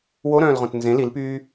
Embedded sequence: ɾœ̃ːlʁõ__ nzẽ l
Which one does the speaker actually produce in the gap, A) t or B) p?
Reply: A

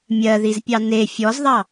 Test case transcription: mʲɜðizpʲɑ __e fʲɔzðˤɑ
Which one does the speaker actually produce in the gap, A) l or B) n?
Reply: B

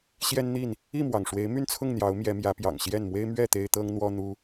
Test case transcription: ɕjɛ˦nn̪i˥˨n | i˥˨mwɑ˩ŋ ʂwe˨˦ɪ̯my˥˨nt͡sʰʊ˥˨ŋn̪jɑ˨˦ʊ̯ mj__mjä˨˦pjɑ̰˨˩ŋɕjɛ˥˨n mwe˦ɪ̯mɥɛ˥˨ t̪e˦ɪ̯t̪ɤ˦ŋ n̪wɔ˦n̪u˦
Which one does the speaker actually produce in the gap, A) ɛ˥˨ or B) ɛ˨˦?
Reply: B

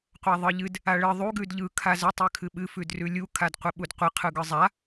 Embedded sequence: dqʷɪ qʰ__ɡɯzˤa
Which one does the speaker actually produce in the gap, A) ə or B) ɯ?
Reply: B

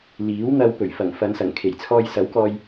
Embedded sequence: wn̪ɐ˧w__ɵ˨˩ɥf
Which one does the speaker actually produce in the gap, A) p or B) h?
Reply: A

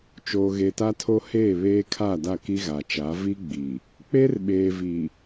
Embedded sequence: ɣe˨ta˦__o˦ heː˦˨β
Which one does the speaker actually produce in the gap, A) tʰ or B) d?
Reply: A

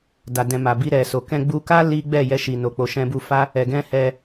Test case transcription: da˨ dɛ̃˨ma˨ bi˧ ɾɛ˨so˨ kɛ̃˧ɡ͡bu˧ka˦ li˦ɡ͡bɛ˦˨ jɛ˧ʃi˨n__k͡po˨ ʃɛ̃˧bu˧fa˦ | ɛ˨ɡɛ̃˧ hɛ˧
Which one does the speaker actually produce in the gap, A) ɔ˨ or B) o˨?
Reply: B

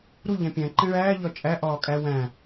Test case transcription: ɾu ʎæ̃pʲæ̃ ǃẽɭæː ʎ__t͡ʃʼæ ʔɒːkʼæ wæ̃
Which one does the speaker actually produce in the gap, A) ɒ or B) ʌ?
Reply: A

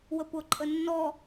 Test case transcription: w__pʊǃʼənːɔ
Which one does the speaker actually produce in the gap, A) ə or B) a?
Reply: A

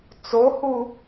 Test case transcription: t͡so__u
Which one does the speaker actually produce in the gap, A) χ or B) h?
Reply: B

